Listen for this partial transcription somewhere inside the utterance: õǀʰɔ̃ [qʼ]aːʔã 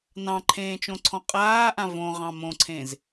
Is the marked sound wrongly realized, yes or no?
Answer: no